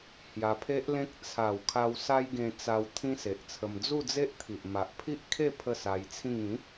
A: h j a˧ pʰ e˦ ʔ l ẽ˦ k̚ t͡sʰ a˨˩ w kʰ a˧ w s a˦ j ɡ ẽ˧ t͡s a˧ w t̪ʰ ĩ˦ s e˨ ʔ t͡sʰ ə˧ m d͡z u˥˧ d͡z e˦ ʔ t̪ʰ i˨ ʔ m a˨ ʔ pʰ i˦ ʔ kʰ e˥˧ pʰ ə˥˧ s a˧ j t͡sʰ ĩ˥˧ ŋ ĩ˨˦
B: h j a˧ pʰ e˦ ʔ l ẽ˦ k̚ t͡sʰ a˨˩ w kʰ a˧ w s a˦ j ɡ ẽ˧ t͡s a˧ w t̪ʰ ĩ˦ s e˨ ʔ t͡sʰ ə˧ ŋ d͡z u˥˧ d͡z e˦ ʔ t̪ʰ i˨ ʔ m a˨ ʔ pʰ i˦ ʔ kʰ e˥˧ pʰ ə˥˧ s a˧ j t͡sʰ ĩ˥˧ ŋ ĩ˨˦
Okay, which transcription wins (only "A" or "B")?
A